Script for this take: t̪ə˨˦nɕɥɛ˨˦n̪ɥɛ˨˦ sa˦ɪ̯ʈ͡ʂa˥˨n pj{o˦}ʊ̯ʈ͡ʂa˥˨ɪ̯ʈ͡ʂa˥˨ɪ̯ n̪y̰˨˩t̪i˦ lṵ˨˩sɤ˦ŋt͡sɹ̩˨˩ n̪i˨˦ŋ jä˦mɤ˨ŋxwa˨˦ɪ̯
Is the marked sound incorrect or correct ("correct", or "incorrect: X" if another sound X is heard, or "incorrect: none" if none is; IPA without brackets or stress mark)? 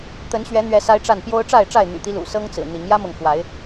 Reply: correct